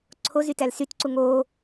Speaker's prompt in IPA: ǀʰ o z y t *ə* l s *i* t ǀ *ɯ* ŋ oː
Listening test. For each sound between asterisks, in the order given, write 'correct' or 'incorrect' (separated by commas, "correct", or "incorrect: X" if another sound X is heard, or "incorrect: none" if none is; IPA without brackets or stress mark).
incorrect: æ, incorrect: y, incorrect: u